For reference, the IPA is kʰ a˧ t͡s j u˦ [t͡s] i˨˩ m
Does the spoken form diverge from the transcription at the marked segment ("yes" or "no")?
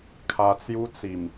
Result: no